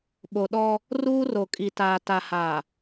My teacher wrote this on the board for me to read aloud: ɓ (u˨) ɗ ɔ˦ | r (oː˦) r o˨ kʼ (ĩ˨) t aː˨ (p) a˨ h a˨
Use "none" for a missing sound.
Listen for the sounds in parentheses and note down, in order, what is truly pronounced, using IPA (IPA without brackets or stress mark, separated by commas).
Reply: o˨, uː˦, i˨, t